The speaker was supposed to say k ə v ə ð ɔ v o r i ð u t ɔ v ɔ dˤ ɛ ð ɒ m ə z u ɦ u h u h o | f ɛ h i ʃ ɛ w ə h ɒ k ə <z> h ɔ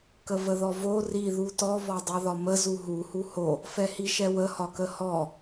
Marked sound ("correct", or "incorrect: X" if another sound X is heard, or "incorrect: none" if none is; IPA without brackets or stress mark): incorrect: none